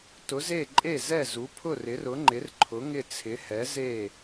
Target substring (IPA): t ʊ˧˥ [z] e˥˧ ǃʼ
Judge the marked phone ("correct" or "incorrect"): correct